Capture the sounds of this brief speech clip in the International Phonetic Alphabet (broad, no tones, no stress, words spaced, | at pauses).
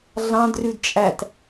ɮɑ̃d rʉdt͡ʃʼæt